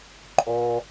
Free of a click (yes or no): no